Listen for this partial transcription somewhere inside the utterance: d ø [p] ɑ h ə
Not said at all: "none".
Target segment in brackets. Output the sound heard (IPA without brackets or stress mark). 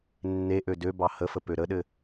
b